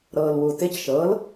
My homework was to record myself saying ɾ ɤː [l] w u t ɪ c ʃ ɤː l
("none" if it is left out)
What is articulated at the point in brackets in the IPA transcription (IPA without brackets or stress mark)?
l